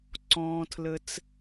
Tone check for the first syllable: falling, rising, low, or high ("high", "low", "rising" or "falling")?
low